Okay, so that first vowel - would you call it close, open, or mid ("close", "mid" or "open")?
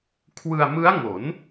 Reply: close